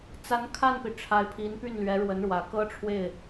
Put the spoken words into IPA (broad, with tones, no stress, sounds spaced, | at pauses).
t͡s a˧˥ n kʰ a˥˩ n p i˩ ʈ͡ʂʰ a˧˥ ɪ̯ pʰ i˧˥ n p y˥˩ n l ɥ ɛ˧˥ ɻ w ə˧˥ n ɻ w ä˨˩ k ɤ˥ ʈ͡ʂʰ w e˥˩ ɪ̯